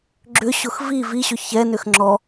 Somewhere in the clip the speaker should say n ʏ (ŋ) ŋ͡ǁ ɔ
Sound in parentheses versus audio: incorrect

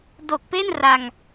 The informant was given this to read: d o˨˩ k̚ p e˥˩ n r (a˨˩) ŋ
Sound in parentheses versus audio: incorrect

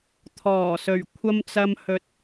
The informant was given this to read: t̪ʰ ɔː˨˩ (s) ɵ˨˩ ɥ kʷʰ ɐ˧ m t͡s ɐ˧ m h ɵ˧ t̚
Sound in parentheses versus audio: correct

